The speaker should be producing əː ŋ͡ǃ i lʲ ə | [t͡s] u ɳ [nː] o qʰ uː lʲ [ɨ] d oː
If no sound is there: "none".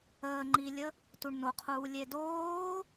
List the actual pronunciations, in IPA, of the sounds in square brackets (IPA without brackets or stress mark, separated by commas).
t, n, e